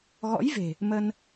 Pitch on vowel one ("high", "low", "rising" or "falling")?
rising